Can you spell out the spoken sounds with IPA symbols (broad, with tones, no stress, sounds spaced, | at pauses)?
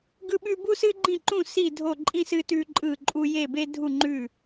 ɡ ɯ˥ ɓ ʉ˥ b u˥ s ɨ˥ ɡ͡ǃ ĩ˥˨ ǃ ũ˥˨ s i˥˨ dʱ o˥˨ ǃʼ ĩ˥ s ɨ˥ t ʉ˥ ǃʼ ɯ˥˨ ǃʼ u˥ j e˥˨ b e˥ dʱ u˥˨ ŋ͡ǃ ʉ˥˨